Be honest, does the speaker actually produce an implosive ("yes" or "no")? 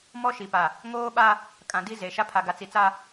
yes